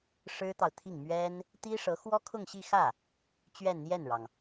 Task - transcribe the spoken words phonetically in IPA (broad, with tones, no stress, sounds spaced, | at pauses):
ʂ ɻ̩˥ t̪ ɑ˨ ʊ̯ t̪ʰ i˥˩ ŋ m ɥ ɛ˥ n | t̪ i˥ ʂ ɤ˧˥ x w ɔ˥ kʰ ʊ˥˧ ŋ ɕ i˥˧ x ä˥˩ | t͡ɕ ɥ ɛ˥˧ n n̪ j ɛ˥˩ n ɻ ɑ˩ ŋ